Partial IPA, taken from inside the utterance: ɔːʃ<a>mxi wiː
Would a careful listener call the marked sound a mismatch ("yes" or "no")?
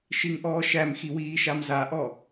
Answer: yes